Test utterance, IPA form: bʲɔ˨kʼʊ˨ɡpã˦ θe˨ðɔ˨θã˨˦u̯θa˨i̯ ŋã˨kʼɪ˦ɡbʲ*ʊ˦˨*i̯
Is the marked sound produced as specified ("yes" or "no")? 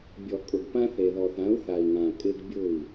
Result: yes